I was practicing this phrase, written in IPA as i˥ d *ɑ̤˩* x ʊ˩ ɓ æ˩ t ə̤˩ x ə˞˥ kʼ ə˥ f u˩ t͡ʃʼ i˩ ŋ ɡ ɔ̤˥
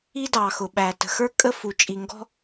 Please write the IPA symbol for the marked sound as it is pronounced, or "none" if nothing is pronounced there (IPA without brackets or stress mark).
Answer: ɑ˩